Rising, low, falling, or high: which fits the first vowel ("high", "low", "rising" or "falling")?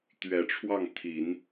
low